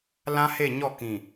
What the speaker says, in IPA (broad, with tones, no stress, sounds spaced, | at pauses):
l ã˦ h e˦˨ ɲ ɔ˦˨ k ĩ˨